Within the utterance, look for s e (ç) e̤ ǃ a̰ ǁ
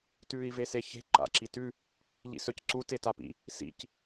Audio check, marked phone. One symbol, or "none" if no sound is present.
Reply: ç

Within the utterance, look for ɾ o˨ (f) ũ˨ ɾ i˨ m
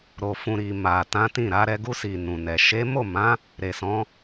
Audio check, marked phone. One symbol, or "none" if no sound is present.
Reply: f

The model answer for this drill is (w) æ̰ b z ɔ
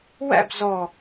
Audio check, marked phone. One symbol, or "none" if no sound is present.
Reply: w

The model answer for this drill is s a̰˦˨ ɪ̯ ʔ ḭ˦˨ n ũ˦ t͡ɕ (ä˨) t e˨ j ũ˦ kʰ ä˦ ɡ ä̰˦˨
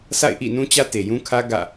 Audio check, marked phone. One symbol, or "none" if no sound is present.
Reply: ä˦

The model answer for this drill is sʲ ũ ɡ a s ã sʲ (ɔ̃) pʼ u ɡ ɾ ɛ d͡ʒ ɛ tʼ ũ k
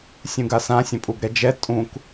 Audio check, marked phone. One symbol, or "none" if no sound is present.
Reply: ə̃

